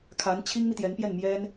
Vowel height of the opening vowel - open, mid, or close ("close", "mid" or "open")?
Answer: open